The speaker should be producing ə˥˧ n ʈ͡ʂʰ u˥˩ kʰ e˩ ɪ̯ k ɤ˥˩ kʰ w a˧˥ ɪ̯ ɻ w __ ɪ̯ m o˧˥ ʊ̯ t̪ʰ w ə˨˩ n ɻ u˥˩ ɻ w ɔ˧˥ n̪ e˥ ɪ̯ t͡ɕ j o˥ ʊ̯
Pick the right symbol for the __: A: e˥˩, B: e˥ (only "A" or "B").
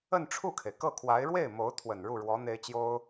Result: A